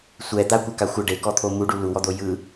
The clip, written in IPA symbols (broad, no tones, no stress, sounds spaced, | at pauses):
sʷ ɛ d̪ a kʷ a k a xʷ ɤ ɖ e k ɔ t̪ʰ o m u ɖ u l u w ɔ d̪ o j ɯ